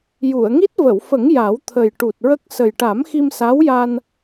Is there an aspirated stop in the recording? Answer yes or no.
yes